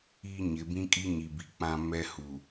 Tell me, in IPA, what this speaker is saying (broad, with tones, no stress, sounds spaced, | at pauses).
iː˦ ɲ ɪ˨˦ b ĩ˦ kʼ i˦ ɲ i˨ b i˨ k͡p ã˨ m ɛ˦ h u˨